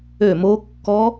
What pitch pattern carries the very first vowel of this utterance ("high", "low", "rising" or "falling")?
falling